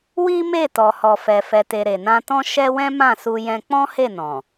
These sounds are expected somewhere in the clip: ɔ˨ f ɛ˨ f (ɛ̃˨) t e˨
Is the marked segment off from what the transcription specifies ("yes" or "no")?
yes